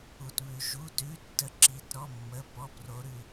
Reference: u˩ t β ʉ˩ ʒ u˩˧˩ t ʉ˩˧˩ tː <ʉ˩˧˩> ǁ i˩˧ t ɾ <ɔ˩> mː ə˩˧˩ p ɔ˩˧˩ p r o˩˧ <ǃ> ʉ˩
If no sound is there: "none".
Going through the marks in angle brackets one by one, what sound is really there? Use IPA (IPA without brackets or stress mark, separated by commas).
ə˩˧˩, ɔ˩˧˩, ɾ